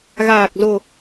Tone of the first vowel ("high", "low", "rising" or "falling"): low